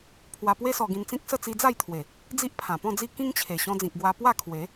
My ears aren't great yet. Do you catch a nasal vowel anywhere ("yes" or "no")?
yes